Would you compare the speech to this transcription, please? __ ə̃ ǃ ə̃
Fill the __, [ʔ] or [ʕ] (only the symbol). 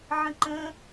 ʕ